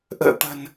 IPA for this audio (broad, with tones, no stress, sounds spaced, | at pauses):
ʔ ə̰ː˧˨ t̪ ə̤˨˩ n